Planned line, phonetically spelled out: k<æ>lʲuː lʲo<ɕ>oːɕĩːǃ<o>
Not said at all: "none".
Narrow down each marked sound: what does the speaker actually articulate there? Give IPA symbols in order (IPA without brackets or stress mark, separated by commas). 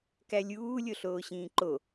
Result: æ, ɬ, o